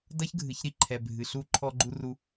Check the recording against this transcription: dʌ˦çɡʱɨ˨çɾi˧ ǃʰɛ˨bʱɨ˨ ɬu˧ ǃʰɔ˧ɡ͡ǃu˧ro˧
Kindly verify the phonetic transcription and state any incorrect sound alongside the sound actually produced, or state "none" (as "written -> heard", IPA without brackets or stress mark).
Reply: o˧ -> u˧